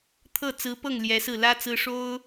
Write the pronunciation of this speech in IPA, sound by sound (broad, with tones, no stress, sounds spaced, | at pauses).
t̪ʰ ɤ˥˩ t͡s ɹ̩˧˥ p ɤ˥˩ ŋ l j ɛ˧˥ s ɹ̩˥˩ l ä˥ t͡s ɹ̩˥ ʂ o˥ ʊ̯